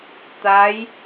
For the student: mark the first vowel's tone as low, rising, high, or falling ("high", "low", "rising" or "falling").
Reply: rising